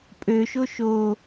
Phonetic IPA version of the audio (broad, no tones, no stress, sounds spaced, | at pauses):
pʼ ø ʃ o ʃ o